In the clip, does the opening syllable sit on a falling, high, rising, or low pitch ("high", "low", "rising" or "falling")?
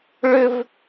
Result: high